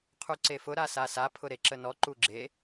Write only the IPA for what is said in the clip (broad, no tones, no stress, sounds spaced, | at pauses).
qʰ u ǀ e f ʊ ɾ a s a s a pʰ ʊ ɾ e ǁ ə n ɔ ǃ u ɡ͡ǁ e